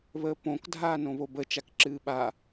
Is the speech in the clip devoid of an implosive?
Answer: no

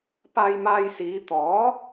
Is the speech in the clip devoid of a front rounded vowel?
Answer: yes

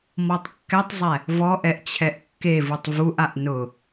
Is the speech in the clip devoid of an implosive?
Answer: yes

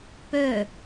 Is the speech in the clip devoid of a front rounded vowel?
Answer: no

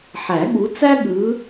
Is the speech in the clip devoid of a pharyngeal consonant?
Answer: no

